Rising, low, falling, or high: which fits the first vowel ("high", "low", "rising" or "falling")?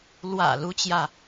low